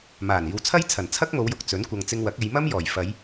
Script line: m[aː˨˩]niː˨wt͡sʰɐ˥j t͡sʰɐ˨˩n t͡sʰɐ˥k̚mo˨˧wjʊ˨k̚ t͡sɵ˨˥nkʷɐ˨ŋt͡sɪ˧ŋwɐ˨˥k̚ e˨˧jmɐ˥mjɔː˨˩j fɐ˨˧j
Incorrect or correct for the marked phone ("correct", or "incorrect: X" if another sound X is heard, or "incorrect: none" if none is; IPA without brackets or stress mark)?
correct